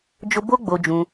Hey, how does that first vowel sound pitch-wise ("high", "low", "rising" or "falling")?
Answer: high